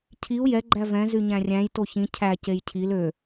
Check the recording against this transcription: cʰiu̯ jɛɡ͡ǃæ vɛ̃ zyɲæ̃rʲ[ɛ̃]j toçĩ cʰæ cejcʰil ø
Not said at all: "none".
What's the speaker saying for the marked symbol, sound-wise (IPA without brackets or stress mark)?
æ̃